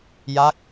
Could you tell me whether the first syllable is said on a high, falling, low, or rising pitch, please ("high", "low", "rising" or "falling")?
falling